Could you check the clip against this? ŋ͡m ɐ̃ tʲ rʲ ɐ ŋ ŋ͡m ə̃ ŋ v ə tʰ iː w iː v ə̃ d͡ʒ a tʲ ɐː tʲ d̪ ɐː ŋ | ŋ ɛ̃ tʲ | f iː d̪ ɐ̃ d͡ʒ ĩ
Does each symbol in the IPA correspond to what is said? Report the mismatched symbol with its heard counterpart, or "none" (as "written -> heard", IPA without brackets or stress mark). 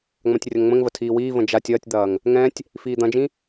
none